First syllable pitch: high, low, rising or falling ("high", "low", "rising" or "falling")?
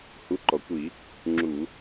rising